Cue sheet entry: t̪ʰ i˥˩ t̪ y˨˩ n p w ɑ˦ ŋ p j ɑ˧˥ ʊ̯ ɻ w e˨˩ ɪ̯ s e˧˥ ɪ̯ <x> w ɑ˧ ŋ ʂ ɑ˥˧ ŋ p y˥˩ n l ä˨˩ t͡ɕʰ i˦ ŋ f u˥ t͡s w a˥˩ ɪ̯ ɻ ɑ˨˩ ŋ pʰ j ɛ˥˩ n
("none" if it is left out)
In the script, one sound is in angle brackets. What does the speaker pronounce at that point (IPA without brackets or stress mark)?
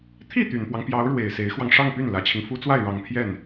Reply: x